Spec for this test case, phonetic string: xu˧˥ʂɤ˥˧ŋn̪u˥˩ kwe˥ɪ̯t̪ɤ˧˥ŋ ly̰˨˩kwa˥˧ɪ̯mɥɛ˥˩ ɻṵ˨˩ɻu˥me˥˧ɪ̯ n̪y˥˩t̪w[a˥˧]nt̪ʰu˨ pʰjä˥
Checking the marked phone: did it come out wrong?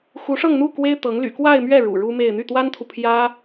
yes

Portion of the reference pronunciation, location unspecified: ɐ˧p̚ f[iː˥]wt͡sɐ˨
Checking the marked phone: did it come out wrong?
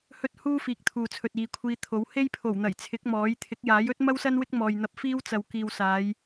no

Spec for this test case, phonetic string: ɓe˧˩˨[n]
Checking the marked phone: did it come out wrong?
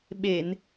no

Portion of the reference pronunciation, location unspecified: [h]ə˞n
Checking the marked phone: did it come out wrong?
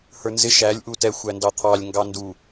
no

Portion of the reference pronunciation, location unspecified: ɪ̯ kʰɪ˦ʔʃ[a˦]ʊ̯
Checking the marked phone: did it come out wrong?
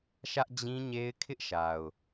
yes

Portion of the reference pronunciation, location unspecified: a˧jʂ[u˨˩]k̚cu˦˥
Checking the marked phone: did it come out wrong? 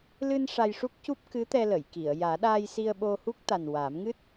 yes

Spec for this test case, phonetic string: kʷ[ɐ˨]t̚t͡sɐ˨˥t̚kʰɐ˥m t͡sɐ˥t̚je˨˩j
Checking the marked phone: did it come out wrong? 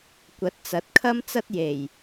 yes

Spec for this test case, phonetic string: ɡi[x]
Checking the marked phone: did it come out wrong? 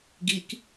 yes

